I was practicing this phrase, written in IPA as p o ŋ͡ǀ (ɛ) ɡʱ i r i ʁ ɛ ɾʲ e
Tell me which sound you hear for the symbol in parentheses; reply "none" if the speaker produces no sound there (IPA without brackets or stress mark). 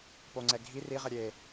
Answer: ɛ